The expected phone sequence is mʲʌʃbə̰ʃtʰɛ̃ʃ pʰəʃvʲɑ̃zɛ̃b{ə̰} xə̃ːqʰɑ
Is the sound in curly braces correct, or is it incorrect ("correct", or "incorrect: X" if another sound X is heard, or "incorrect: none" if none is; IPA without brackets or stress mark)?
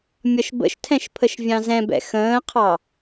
incorrect: ɛ̰